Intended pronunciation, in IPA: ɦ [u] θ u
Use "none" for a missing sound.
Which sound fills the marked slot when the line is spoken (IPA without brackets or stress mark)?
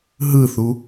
ɯ